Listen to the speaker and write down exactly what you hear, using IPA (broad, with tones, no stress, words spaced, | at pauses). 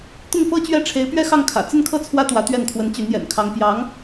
t̪ʊ˥˩ŋfɤ˥ t͡ɕɥɛ˥˩ʈ͡ʂʰe˧˥ɪ̯ pɥɛ˥xɑ˥˩ŋkʰä̰˨˩ t͡sə˥˧nkʰɤ˥˩ t͡sʰwä˥ t̪wä˧˥t̪ɥɛ˥˩nkʰwə˧˥n t͡ɕy˧˥njɛ̰˨˩nkʰɑ˧˥ŋ pjɑ˧˥ŋ